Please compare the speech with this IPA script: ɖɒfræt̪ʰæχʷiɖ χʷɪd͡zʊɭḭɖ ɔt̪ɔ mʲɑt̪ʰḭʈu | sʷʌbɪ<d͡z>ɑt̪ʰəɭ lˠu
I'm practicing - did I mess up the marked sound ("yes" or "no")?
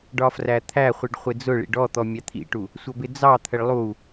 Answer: no